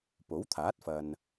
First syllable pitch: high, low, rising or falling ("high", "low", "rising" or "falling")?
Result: rising